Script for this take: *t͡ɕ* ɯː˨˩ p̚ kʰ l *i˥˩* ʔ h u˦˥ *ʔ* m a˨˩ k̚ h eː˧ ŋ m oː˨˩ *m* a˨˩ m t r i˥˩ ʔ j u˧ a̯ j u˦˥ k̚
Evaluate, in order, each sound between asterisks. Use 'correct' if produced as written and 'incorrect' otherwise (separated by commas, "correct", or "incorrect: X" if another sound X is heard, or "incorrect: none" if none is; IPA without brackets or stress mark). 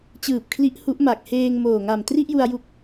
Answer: correct, incorrect: i˦˥, correct, incorrect: ŋ